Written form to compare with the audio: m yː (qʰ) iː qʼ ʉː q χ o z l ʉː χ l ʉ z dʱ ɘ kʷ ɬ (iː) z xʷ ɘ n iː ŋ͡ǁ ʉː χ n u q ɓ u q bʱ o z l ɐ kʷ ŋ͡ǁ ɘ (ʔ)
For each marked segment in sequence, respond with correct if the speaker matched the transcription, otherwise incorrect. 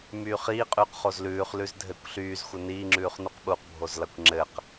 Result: incorrect, incorrect, incorrect

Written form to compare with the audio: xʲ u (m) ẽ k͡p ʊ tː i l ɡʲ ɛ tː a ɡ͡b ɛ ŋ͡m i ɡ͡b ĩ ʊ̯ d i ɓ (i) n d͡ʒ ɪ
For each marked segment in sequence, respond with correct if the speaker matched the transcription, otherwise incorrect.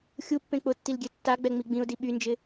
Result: incorrect, incorrect

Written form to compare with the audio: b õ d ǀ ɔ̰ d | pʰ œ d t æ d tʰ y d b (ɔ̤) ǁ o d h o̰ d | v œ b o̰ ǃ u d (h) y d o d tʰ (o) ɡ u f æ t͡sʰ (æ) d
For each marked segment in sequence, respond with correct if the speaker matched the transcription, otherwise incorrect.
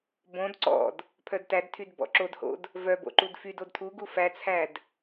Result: incorrect, incorrect, incorrect, correct

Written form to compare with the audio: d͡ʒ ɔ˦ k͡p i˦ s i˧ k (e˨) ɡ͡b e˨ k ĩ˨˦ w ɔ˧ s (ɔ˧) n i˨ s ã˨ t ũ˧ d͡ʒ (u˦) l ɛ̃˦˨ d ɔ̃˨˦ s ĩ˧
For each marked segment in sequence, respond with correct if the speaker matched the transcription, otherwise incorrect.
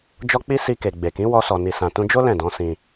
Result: correct, incorrect, incorrect

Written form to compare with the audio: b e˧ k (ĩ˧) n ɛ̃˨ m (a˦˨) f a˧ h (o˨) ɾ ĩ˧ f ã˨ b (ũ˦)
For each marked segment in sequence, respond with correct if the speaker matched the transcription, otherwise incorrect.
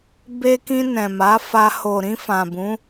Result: correct, incorrect, correct, incorrect

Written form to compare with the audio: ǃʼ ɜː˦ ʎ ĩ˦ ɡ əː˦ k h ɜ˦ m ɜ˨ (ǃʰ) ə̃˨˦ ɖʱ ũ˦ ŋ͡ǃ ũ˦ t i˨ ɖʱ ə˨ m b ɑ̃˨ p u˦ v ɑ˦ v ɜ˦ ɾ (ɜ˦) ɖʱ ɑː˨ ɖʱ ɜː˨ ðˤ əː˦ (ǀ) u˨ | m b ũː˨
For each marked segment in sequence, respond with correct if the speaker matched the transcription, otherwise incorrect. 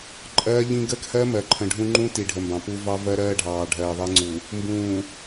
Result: correct, incorrect, incorrect

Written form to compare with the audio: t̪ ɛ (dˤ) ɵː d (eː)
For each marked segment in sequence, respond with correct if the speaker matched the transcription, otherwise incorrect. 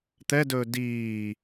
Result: incorrect, incorrect

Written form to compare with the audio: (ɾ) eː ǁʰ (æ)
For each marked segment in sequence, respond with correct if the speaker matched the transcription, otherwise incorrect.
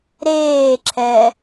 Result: correct, incorrect

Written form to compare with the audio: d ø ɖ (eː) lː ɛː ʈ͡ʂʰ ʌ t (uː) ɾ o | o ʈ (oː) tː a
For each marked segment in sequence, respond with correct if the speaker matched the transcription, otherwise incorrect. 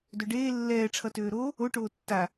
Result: correct, incorrect, correct

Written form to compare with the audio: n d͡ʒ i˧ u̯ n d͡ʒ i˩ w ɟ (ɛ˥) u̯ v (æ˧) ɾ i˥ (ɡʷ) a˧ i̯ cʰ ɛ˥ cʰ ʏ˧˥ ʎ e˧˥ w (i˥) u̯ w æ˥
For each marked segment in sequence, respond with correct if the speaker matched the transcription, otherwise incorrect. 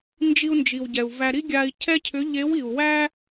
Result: incorrect, correct, incorrect, incorrect

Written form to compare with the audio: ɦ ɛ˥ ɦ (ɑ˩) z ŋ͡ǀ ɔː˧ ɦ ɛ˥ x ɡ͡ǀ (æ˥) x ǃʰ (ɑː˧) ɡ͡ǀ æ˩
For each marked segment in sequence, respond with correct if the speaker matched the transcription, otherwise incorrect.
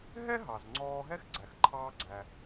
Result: correct, incorrect, correct

